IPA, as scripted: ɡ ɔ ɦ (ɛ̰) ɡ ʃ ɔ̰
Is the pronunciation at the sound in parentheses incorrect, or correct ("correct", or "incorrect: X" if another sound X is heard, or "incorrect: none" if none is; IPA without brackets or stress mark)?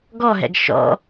correct